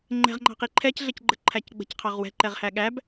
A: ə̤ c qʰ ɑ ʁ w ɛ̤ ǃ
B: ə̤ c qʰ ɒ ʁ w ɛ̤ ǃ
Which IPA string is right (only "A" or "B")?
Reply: A